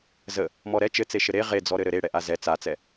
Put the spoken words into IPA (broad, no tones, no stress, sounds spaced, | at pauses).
z ə | m ɔ ɾ ɛ t͡ʃ ɘ t͡s e ʃ ɘ ɾ e ʁ e d͡z ɔ ɾ ɘ ɾ ɘ ɾ e ɽ ɛ ʔ a z ɛ t͡s a t͡s ɛ